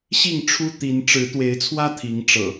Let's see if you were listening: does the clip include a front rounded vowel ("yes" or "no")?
no